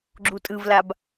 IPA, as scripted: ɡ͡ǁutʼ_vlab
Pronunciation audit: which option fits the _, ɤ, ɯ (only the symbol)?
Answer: ɯ